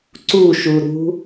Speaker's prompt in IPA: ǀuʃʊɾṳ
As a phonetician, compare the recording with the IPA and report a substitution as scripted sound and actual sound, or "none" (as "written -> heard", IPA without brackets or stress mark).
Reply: ʊ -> u